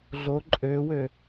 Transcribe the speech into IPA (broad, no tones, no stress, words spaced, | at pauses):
ɮo ǃʼøwø